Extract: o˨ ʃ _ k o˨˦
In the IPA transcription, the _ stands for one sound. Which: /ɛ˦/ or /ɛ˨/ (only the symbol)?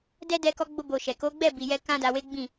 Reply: ɛ˨